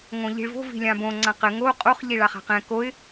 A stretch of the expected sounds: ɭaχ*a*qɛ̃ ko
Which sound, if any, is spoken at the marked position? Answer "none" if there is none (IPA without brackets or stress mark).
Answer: a̤